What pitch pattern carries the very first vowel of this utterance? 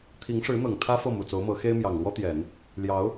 rising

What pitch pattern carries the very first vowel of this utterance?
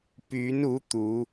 rising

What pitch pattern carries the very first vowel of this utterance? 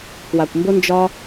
low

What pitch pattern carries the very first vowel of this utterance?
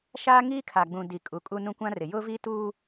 high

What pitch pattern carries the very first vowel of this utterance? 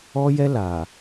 high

